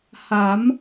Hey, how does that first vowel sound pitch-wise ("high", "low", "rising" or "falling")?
rising